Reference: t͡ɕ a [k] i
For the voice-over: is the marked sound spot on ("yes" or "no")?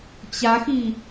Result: no